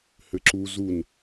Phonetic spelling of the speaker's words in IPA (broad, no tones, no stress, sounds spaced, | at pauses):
h ɘ ǁ u z u n